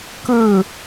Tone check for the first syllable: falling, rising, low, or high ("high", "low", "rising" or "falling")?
falling